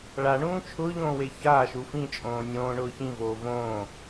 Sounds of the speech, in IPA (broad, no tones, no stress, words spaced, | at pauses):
ɭaɳũː t͡ʃʰʊːʎõːwe çaːʃu fĩt͡ʃʼõː nʲõːɳʊː çĩvoː võː